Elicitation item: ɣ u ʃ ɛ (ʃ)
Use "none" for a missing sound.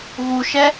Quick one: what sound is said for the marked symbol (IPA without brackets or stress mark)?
none